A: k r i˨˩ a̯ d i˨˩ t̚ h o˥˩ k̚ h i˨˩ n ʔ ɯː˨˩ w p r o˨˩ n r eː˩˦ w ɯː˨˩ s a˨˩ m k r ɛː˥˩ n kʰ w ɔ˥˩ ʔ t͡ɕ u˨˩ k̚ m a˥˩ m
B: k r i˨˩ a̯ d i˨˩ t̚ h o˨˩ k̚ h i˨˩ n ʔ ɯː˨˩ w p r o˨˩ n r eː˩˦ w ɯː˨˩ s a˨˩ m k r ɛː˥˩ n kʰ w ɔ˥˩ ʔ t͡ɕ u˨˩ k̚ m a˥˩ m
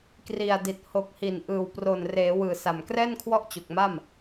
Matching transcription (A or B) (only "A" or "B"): B